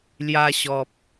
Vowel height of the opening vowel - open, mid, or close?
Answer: open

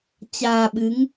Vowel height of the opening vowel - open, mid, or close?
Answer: open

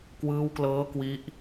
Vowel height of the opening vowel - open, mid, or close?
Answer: close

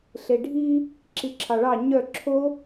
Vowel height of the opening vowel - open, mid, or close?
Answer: mid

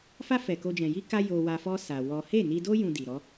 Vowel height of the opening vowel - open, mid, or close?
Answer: open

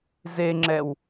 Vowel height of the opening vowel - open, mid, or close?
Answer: mid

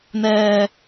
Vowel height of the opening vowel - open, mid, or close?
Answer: mid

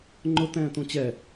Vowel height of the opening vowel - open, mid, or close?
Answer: close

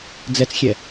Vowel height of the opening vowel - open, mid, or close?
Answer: mid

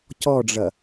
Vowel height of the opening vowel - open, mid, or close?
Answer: mid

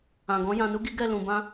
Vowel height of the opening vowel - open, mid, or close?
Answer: open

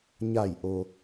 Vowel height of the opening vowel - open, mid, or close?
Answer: open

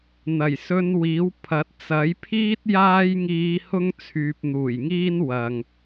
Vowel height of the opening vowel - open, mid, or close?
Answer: open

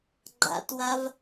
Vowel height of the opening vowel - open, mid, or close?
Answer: open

